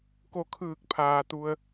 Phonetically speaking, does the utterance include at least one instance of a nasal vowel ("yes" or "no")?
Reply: no